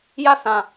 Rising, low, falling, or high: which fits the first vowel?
falling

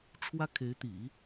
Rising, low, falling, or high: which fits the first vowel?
high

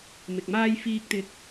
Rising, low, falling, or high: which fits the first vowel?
low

